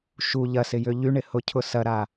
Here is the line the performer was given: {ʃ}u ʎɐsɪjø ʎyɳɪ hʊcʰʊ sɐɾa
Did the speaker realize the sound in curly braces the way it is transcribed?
yes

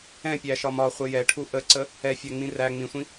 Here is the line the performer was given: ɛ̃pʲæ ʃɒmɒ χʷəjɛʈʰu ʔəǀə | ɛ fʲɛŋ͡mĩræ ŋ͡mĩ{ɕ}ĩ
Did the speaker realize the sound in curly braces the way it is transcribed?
no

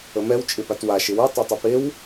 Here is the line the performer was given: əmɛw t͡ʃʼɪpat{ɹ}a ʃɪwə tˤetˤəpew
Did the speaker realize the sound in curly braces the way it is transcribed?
no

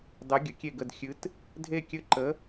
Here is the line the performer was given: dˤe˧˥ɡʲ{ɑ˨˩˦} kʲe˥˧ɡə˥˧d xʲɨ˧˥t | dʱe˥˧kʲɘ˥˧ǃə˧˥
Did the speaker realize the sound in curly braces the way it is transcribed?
no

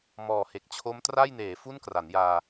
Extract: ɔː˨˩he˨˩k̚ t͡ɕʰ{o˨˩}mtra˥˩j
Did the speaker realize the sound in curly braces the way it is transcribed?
no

